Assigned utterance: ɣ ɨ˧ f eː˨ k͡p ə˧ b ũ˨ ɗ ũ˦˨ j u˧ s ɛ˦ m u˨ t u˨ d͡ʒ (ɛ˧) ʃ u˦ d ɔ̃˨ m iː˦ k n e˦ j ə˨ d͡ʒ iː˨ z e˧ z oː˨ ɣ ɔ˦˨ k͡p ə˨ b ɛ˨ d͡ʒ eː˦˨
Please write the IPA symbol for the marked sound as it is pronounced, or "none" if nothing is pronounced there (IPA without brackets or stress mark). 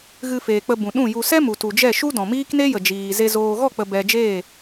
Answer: ɛ˦˨